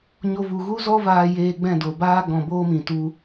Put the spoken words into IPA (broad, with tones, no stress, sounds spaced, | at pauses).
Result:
ɲ o˧ v u˨ ɣ u˦ z ɔ˦ v aː˧ j eː˧ ɡ͡b ɛ̃˦˨ d o˨ b aː˦ ɡ ɔ̃˨ b oː˦ m ĩ˨ t u˧